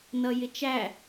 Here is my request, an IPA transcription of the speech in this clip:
n ʌ j ɪ t͡ʃ æ

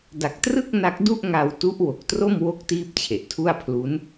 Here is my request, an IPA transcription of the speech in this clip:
d a˨˩ k̚ t r ɯ˥˩ k̚ n a˦˥ k̚ d u˥˩ ʔ ŋ a˧ w t u˦˥ ʔ w o˨˩ k̚ t r o˥˩ m w o˦˥ k̚ t iː˥˩ p̚ t͡ɕʰ e˨˩ ʔ tʰ u˥˩ a̯ pʰ l u˦˥ n

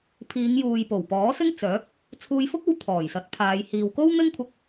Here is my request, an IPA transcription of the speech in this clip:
pʰ iː˨˧ ŋ j uː˨ j p o˨˩ w p ɔː˨˥ s ɪ˥ ŋ t͡s œː˨˥ p̚ | t͡sʰ uː˧ j f ʊ˥ k̚ o˧ w t̪ʰ ɔː˨˩ j s ɐ˨˥ t̚ pʰ aː˨˧ j h iː˨ w k o˥ w n̪ ɪ˥ ŋ kʷʰ ɐ˧ k̚

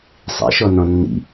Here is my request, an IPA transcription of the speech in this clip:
sˤ ḭ ʃ ɔ n ɔ̃ nː ḭ

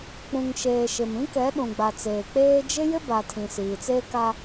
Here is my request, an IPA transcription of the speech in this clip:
k͡p ũ˨ ŋ ʃ eː˨ ʃ ɪ˨ m ĩ˦ k ɛ˨˦ ɗ ũ˨ ɡ͡b a˨ t͡s eː˨ k͡p eː˦ d͡ʒ ɪ˦ j ɪ˦ b a˨ tʰ ĩ˨ s iː˨ t͡s eː˦ k a˦

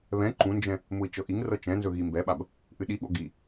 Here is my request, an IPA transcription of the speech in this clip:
β ɛ̃ ǃ ũ n d͡ʒ ɛ̃ | m u i̯ t͡ʃ ɤ ʔ i ŋ r ɤ t͡ʃ ɛ̃ n z ɵ ɣ i m b ɛ ɓ a b | ʔ ɨ ɗ i ɠ o ɡ i

